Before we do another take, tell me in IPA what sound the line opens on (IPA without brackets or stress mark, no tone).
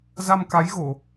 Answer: z